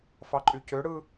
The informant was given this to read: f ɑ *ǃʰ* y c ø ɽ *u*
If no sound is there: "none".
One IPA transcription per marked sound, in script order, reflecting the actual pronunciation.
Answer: ǃʼ, ɯ

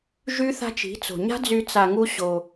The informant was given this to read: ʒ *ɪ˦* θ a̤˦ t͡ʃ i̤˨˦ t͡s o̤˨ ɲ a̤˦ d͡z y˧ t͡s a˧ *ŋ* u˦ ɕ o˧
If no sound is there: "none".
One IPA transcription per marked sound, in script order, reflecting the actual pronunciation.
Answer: y˦, ŋ

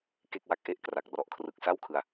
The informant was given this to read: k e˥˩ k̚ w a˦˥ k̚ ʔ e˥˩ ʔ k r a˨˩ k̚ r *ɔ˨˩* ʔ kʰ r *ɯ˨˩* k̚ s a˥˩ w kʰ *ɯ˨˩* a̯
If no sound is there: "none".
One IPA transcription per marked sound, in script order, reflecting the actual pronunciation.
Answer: ɔ˨˩, ɯ˨˩, ɯ˧

